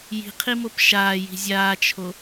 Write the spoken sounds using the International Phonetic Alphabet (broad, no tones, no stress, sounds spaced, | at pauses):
j i̤ qʰ i m o p ʃ aː j i̤ zʲ aː t͡ʃʰ o